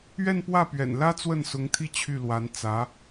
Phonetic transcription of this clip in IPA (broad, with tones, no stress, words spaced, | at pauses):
ɥɛ˥˧npwä˥˩pɥɛ̰˨˩nlä˥ t͡swə˥˩nsʊ˧˥ŋt̪ʰi˥˧ t͡ɕʰy˥˩lwa˧˥n t͡sä˧˥